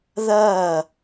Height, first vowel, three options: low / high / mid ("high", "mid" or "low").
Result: low